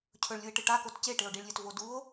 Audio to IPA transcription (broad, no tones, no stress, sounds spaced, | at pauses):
cʰ ɵ ɭ lʲ u e̯ ʈ ɨ ʈ a k o t c e ʈ e o̯ ɖ i ɭ lʲ ɵ t v o d u o̯